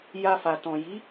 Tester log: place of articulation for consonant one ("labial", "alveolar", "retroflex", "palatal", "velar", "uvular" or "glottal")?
palatal